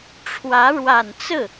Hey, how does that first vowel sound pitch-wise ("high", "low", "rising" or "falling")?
rising